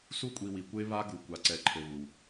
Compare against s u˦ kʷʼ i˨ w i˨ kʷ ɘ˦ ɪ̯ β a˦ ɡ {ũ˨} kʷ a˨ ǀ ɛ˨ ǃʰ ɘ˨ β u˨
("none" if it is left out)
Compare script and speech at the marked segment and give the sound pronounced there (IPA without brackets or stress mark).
u˨